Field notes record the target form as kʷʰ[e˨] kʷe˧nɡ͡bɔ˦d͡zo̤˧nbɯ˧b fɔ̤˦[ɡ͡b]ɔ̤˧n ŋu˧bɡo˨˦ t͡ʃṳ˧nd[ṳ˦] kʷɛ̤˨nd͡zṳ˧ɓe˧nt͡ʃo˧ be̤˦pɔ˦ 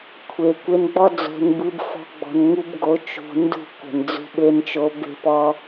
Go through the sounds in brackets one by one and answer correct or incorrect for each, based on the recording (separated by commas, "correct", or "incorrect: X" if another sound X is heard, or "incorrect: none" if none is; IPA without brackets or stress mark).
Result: correct, correct, incorrect: ṳ˦˨